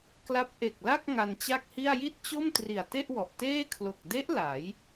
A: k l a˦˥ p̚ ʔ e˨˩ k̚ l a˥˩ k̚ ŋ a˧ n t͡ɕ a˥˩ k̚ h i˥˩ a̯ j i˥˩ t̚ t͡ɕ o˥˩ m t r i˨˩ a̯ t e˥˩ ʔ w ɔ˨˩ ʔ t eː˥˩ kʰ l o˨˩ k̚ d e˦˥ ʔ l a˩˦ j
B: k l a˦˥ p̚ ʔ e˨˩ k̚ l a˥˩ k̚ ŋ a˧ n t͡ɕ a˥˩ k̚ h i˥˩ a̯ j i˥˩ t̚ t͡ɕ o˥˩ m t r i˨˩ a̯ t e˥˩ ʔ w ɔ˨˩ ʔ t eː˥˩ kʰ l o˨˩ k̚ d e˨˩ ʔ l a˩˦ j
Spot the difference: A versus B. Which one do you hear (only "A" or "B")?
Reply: A